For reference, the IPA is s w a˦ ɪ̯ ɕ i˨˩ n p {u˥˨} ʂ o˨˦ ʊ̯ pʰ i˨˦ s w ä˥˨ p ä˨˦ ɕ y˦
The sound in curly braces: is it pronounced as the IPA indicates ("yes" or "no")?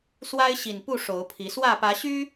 yes